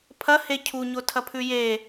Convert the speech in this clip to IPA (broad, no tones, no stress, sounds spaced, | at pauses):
pʰ ɐ h e cʰ u ɲ o tʰ ɐ pʰ ʉ j e